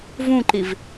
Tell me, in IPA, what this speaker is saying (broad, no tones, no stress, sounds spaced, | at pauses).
v ũ ǃ i v